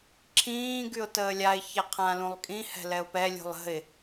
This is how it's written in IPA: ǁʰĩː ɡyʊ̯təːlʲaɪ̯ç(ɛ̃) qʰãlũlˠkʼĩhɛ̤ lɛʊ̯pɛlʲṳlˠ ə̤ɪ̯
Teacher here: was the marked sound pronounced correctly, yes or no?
no